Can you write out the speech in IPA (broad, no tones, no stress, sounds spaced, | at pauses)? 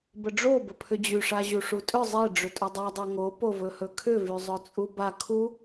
b ə ɖ͡ʐ o b ə pʰ ʏ d͡ʑ y ʂ a ʑ u ʂ u tʼ ʏ zˤ e ɖ͡ʐ ʏ tʼ ɵ dˤ a dˤ e ŋ o p o v ɵ h ɵ kʰ ʏ v y zˤ ɵ t͡sʼ u b a kʰ u